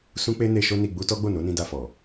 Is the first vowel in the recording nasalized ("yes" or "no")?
yes